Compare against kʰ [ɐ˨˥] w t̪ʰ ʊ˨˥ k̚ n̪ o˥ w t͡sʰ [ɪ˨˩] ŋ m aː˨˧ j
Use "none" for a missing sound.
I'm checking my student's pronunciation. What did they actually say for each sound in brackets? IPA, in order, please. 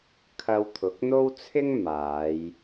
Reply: ɐ˧, ɪ˥

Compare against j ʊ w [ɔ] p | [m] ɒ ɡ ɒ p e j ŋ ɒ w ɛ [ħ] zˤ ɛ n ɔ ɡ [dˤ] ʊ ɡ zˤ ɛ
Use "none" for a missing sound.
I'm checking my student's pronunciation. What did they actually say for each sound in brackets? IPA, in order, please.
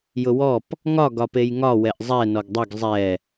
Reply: ɔ, ŋ, ʔ, dˤ

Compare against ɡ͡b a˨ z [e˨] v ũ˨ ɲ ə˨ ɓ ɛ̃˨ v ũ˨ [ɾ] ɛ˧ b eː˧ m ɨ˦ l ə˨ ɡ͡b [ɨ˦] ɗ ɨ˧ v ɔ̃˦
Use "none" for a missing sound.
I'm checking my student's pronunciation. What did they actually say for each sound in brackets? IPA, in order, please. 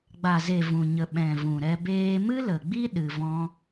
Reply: e˨, ɾ, i˦

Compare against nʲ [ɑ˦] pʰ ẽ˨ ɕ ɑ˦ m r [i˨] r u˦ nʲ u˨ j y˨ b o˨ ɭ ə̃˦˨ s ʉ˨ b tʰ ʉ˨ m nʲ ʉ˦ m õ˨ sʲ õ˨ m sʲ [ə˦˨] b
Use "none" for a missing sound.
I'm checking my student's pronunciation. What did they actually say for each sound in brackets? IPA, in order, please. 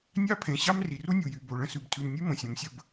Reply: ɑ˦, i˨, ə˦˨

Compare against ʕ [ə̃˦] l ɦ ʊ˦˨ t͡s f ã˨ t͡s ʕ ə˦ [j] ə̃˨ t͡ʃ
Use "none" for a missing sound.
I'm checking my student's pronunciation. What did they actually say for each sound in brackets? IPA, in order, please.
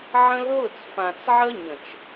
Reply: ə̃˦, ɲ

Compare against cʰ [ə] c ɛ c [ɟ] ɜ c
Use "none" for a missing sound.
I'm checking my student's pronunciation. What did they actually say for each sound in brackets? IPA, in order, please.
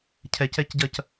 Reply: ɛ, ɟ

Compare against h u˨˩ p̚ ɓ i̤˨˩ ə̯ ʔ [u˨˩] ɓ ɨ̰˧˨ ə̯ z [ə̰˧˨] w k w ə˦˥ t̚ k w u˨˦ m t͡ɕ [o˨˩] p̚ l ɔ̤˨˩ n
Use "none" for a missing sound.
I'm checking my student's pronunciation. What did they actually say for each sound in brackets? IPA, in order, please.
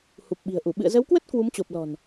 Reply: u˧˩, ə˨˦, o˨˩

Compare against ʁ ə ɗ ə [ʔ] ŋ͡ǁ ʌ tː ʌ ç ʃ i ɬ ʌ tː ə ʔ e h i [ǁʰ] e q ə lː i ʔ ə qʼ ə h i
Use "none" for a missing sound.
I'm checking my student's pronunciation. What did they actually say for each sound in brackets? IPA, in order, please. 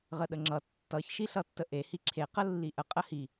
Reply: none, ǁʰ

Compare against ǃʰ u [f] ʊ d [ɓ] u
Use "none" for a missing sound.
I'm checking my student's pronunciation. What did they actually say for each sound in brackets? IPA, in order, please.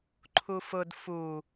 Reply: f, f

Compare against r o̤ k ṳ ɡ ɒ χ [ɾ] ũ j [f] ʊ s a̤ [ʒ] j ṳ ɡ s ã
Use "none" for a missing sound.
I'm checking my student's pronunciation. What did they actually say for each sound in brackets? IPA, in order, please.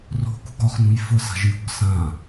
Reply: n, f, ʒ

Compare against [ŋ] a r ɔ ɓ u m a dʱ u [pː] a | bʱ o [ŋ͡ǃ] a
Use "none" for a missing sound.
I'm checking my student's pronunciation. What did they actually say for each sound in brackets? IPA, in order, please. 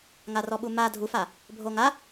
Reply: ŋ, f, ŋ

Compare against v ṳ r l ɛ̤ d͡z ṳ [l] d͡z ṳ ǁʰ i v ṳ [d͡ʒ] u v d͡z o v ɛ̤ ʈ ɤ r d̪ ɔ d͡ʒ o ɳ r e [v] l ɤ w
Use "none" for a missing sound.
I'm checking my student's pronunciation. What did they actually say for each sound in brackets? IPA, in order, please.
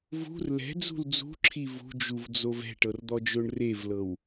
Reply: l, d͡ʒ, v

